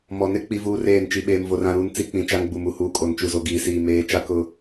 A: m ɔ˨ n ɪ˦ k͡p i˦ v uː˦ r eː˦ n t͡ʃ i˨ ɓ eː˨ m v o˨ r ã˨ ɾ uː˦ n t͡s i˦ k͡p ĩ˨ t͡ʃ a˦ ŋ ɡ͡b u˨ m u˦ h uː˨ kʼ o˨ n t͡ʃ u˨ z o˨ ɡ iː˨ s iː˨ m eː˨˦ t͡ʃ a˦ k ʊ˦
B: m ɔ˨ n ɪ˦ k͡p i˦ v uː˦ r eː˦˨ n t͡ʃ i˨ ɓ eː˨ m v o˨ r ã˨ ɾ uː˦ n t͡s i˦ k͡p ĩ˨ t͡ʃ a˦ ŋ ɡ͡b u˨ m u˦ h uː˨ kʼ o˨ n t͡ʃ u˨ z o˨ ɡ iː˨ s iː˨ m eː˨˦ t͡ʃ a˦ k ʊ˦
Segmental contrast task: B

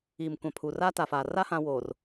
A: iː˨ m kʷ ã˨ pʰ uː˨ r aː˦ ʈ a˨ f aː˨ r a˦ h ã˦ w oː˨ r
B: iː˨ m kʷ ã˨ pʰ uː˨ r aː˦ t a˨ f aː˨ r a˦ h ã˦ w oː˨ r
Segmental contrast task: B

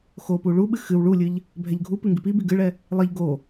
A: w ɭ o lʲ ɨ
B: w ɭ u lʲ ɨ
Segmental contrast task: B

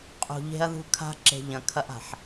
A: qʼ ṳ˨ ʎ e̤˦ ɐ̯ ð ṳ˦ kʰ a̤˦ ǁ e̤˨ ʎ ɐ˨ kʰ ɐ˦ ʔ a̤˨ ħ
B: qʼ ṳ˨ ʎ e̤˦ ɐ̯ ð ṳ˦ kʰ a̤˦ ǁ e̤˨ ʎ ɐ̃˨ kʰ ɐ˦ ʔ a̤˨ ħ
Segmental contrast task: B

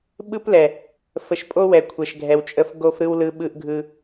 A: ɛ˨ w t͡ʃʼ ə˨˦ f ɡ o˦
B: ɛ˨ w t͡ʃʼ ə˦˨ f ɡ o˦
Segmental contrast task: B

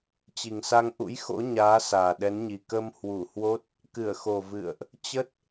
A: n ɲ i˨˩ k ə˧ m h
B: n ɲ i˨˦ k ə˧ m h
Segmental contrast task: A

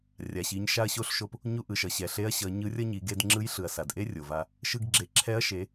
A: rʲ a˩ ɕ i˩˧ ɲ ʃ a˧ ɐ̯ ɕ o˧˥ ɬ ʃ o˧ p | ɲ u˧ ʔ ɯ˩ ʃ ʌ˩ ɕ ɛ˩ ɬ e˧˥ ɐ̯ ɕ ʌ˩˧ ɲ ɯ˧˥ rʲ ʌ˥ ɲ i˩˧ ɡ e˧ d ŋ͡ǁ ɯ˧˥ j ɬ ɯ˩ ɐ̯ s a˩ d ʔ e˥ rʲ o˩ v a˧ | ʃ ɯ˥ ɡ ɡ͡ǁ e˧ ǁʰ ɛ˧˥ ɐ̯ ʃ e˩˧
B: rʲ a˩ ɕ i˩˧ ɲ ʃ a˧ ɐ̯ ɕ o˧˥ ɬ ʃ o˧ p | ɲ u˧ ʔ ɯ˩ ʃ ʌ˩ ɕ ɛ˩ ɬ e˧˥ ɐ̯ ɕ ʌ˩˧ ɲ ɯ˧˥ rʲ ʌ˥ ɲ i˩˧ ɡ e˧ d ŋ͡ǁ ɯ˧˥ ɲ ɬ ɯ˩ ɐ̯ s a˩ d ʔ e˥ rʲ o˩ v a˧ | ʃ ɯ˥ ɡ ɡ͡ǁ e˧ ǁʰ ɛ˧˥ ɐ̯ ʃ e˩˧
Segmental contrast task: A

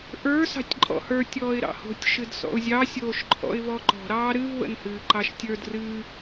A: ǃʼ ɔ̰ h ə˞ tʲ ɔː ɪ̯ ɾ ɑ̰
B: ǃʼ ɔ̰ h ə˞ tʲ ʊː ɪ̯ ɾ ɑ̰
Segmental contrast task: A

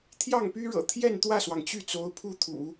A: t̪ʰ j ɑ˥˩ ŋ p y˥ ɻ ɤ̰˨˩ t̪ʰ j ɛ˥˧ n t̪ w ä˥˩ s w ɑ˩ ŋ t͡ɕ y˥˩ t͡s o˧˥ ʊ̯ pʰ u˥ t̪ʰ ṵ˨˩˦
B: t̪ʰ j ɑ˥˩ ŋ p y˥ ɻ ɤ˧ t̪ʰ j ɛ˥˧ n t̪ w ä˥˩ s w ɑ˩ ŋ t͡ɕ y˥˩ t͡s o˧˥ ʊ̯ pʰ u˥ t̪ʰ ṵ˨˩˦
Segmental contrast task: A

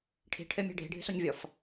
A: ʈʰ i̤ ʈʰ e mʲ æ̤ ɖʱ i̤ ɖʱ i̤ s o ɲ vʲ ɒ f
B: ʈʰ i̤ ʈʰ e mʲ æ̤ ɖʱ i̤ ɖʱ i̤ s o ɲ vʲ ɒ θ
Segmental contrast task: A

